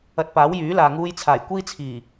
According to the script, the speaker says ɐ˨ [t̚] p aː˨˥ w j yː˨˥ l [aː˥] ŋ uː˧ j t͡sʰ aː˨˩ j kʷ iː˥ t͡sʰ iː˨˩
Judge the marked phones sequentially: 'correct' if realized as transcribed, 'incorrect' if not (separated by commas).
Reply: correct, incorrect